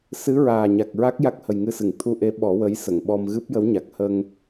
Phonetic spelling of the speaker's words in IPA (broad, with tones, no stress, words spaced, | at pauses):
sɨ˧˥ ɹaː˨˩ɲa˨˩k̚ɹa˦˥k̚ ja˦˥k̚hə˨˩jŋɨ˧sɨ˨˩˨ŋ t̪ʰu˧ʔe˧˥ ɓɔ˨˩˦wə˧˥jsə˨˩˨ŋɓɔ˧m ɣɨ˦˥p̚jə˧˥wɲa˨˩k̚ hə˧ŋ